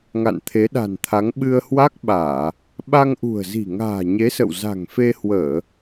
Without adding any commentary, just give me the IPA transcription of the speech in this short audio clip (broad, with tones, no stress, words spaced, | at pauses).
ŋa̰˧˨nt̪ʰe˨˦ɗa̤˨˩nt̪ʰa˨˦ŋ ɓɨ˧ə̯hwa˦˥k̚ɓaː˧˩˨ | ɓa˧ŋʔṳ˨˩ə̯zi̤˨˩ ŋa̤ː˨˩ɲe˨˦sə̰˧˨w za̤˨˩ŋfe˧hwəː˧˩˨